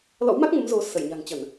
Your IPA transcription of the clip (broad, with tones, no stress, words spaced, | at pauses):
lɔ̰˧˥wma˦˥k̚ŋə˨˦m zo˨˦ sə˧˩jɲa̤˨˩ŋt͡ɕə˧˩˨n